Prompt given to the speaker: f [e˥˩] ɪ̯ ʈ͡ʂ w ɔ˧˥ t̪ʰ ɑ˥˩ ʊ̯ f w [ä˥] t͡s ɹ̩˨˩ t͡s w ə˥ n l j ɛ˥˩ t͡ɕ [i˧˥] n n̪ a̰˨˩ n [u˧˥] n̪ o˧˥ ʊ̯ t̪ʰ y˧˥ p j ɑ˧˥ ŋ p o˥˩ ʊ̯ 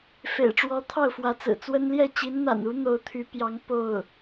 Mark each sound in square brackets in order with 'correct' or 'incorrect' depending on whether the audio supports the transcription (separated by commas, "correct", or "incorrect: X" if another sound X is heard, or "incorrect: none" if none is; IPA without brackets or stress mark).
incorrect: ḛ˨˩, incorrect: ä˧˥, correct, correct